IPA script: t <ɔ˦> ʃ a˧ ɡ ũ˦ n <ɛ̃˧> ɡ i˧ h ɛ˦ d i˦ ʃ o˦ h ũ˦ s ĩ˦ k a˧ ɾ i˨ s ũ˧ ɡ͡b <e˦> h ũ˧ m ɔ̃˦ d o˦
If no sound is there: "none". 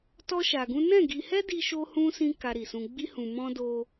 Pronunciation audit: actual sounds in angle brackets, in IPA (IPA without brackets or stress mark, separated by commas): ɔ˦, ɛ̃˦˨, i˦